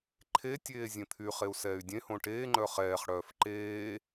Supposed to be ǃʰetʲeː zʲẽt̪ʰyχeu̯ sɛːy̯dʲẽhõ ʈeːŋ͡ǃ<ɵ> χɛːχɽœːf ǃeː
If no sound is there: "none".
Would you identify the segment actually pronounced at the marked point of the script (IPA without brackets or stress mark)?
œ